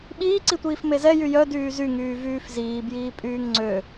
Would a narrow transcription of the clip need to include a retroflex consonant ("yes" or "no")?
no